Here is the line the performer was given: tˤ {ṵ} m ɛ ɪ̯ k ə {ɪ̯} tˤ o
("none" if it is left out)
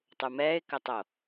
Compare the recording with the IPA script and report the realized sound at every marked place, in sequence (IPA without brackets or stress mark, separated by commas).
u, none